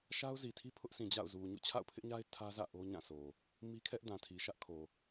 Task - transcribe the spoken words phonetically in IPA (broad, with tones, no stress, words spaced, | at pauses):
ʃa˦ʊ̯zi˨tʰi˦ pʰʊ˦ʔsʰĩ˨d͡ʑa̰˦˨ʊ̯zu˨ ɲṵ˦˨t͡ɕʰa̰˦˨ʊ̯pʰɪ˦ʔɲa˦ɪ̯ tʰä˦zä̰˦˨ ʔo˦ɲã˦˨sʰo˨ | mi˦kʰɛ˦ʔdã˨ tʰi˨ʃä˦ʔkʰo˨